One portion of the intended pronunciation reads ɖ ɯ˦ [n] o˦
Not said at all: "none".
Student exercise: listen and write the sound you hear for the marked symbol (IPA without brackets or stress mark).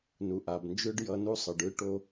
ʈ